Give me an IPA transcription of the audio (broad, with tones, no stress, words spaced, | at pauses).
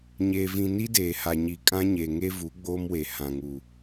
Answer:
ɲeː˨vĩ˨ ni˦deː˨ha˨ɲi˨ kʼã˦ɲe˨ŋe˦vu˨˦ ɡ͡boː˦mwe˨ hã˨ŋuː˨